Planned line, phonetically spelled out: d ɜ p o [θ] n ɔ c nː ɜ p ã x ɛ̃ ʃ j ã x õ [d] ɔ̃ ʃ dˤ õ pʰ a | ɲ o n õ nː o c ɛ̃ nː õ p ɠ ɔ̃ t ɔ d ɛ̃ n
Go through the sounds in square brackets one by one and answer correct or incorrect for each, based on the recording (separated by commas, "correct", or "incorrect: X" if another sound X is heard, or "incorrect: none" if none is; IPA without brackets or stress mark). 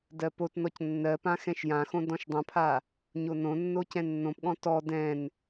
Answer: incorrect: t, correct